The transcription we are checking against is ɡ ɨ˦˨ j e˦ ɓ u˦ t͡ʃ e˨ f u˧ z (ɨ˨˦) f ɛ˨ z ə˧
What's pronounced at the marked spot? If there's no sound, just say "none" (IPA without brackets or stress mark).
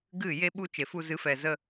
ɨ˨˦